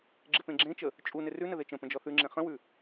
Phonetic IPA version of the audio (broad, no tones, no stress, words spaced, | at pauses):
ɡ͡ǁɪpẽɡ͡ǁẽt͡ʃə | t͡ʃʼunɪ rʉnə ðet͡ʃə̃pə̃ d͡ʒɔθʉŋ͡ǁẽ χə̃wʉ